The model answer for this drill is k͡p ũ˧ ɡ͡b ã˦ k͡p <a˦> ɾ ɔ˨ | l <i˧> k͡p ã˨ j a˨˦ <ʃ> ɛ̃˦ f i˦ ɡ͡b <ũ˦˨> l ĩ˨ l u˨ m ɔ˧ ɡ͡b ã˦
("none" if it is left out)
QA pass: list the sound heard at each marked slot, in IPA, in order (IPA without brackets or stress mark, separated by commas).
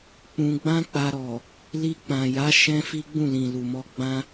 a˧, i˧, ʃ, ũ˦˨